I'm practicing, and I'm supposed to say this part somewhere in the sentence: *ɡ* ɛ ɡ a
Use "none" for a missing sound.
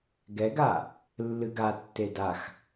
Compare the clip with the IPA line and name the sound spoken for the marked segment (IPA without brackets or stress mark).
ɡ